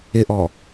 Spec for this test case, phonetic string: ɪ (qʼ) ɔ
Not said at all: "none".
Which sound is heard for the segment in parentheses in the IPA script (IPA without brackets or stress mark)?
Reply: ʔ